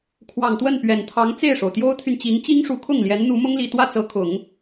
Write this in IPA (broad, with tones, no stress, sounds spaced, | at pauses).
kʰ w ɑ˨˩ ŋ t̪ w ə˥˩ n p ɥ ɛ˨˩ n t̪ʰ ɑ˧˥ ŋ t͡s e˥˩ ɪ̯ ʂ o˩ ʊ̯ t̪ j o˥ ʊ̯ t̪ʰ y˨ n t͡ɕ i˧˥ ŋ t͡ɕ i˥ ŋ ʂ u˧˥ kʰ ʊ˥˩ ŋ l j ɛ˧˥ n n̪ u˧˥ m ʊ˥ ŋ l i˨˩ t̪ w ä˥˩ t͡s ɤ˧˥ kʰ ʊ˨˩˦ ŋ